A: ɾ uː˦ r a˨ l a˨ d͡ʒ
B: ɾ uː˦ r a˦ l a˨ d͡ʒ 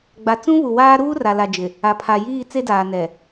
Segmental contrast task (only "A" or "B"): A